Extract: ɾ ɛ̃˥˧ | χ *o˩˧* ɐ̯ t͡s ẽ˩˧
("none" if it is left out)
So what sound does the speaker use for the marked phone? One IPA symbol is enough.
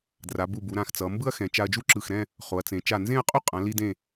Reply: o˩˧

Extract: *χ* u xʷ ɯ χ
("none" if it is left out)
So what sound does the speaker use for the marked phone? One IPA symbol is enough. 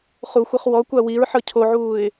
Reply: χ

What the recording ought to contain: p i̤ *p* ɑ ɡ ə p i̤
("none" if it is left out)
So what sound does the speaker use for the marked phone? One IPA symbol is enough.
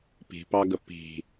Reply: p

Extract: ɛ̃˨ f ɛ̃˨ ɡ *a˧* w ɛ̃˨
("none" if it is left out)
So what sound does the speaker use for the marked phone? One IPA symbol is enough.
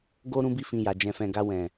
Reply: a˧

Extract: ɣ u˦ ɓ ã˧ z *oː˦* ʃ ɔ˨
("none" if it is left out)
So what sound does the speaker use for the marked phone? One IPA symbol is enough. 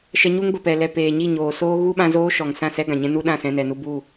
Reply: oː˦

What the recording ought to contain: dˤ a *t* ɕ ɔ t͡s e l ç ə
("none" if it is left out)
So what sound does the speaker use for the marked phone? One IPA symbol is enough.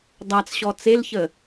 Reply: t͡s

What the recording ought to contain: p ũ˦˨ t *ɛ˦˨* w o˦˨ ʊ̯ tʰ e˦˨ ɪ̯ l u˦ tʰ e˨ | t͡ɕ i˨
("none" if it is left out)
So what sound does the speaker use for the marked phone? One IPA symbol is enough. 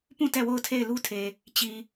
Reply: ɛ˦˨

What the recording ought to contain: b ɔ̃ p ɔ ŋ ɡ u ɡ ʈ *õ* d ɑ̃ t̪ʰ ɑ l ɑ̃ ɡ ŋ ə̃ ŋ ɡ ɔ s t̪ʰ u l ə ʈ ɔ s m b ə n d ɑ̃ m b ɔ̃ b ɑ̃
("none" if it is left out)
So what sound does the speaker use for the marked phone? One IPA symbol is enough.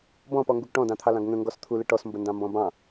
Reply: ɔ̃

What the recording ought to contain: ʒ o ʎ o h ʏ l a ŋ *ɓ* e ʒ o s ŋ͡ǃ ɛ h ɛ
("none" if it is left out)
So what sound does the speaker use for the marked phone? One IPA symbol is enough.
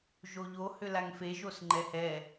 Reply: f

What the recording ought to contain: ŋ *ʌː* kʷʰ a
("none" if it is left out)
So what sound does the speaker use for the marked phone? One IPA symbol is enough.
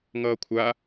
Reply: ʌː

